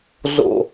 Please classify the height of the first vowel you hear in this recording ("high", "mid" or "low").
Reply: mid